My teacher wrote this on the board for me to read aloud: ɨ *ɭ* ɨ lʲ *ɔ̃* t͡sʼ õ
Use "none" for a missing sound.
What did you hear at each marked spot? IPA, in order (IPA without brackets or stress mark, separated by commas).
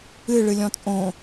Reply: ɭ, ɔ̃